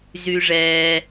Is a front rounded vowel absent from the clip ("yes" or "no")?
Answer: no